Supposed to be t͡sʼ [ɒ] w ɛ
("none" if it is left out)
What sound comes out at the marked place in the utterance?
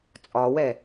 ɒ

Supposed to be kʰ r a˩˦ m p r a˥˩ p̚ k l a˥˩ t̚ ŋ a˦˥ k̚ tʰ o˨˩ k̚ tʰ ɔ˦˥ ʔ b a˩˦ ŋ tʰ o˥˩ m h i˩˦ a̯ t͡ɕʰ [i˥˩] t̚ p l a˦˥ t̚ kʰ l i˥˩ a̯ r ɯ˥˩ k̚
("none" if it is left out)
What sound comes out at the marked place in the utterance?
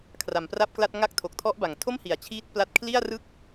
iː˥˩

